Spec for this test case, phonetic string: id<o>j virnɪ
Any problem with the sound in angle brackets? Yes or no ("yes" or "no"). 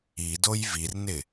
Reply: no